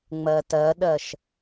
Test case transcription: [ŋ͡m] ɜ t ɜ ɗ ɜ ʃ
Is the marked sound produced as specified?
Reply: yes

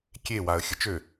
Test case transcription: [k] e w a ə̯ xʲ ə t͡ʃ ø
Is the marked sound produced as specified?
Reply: no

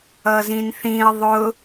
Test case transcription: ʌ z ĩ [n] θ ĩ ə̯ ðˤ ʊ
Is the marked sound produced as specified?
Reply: yes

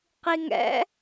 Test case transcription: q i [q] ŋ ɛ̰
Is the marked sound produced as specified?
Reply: no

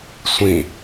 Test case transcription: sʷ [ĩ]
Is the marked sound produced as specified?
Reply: yes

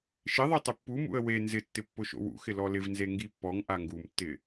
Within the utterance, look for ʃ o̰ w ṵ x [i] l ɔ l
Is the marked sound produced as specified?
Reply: no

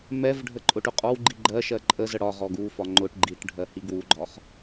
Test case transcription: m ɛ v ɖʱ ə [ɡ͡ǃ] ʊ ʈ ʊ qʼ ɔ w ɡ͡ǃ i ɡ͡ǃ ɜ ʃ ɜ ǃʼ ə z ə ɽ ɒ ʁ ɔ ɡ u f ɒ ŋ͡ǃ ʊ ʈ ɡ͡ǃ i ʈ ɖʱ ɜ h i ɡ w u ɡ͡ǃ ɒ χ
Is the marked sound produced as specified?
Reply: no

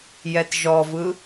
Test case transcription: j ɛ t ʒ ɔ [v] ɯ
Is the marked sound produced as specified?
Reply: yes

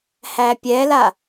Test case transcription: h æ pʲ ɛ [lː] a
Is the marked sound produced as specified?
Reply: no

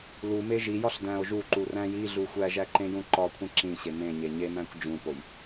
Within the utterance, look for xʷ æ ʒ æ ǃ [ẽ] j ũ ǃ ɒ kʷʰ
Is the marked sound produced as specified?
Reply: yes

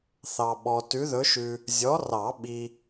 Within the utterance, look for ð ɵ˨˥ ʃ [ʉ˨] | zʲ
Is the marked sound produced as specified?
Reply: yes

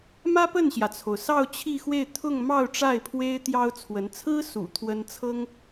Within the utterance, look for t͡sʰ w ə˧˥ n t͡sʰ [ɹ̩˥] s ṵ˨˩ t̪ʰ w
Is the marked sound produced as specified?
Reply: yes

